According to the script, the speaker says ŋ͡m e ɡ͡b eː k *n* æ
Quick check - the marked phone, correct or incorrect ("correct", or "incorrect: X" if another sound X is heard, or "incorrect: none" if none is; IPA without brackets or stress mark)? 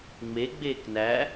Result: correct